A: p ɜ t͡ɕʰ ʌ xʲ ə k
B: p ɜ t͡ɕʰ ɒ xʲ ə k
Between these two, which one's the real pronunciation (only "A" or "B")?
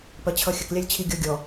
A